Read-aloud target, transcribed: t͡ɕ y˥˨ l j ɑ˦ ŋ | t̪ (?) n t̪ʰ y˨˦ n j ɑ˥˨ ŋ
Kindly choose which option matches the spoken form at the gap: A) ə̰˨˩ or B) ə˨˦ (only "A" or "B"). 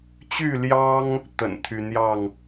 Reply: A